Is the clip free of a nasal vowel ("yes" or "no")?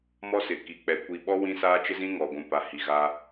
no